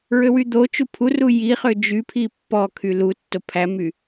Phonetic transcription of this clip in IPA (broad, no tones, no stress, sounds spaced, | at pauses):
ɹ ø w y d̪ o t͡ʃ u pʰ u r u j i χ ø d͡ʒ y pʰ i pː ɔ kʰ y l u tː o pʰ æ m y